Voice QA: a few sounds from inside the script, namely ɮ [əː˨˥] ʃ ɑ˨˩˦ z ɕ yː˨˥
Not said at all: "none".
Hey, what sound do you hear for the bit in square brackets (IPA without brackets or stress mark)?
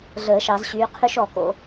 əː˨˩˦